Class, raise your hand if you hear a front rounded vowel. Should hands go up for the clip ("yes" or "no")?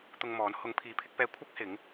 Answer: no